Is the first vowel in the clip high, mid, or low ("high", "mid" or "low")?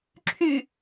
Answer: high